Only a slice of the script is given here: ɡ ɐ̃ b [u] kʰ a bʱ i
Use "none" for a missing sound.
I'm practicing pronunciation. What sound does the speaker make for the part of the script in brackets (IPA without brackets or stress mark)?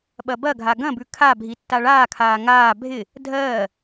ʉ